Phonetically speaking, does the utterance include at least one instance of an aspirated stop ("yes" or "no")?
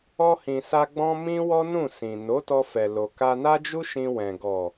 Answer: no